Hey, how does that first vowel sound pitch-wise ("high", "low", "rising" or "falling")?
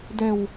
low